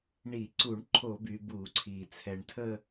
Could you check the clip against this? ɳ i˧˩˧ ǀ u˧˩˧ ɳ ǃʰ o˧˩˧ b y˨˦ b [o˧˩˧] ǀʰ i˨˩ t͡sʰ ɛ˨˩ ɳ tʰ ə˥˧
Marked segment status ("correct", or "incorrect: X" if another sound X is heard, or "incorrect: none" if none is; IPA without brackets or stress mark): incorrect: u˧˩˧